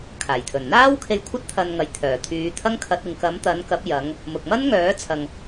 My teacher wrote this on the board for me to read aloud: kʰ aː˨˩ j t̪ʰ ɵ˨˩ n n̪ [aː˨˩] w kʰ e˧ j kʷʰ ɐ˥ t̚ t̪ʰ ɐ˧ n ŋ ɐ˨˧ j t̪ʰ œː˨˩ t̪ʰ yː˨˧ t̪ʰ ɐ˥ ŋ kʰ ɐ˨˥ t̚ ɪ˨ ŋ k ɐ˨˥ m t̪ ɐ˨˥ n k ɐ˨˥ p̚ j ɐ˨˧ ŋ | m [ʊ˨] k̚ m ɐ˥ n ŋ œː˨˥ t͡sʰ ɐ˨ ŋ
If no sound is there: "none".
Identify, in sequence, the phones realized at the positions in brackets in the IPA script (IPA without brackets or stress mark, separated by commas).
aː˥, ʊ˨